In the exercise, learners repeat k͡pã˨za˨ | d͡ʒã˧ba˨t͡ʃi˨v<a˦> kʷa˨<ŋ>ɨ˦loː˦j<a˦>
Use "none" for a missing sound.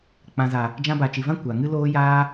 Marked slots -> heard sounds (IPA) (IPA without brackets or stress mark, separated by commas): ã˦, ŋ, aː˦